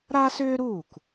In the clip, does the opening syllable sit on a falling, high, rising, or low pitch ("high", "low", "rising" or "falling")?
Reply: high